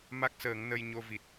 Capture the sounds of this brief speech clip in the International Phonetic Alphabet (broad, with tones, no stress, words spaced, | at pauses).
ma˦˥k̚səː˨˩˦ŋ nə˧j ɲo˧vi˨˩t̚